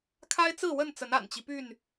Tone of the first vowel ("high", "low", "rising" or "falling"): high